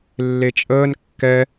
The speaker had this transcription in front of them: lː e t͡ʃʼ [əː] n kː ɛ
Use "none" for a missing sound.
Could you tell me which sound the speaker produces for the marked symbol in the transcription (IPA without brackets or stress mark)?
əː